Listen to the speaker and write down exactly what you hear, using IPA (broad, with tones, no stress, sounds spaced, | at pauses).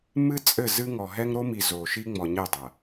m ɨ˦ t͡sʼ ɘ˦˨ z ɨ˦ ŋ ɔ˨ ɦ ɛ˦ ŋ ɾ o˦ m i˨ z oː˨ ʃ i˦ ŋ͡m ɔ˨ ɲ e˦˨ dˤ ɐ˨